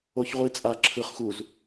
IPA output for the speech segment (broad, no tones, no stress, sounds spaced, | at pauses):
o ç ʁʷ i t͡sʼ a ǁʰ ɯ χ x u z